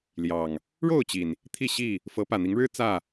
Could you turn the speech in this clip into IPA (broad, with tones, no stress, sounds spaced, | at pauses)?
l j ɑ˨˩ ŋ | ɻ o˥˨ ʊ̯ t͡ɕ i˩ n | t̪ʰ i˥˨ ɕ i˥˨ | f ɤ˨˦ p ä˨˩ n̪ i˨˦ ŋ ɻ ɻ̩˦ t͡s ä˥˨